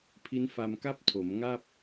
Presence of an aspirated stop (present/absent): present